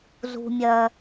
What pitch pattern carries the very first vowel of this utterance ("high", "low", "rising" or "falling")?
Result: low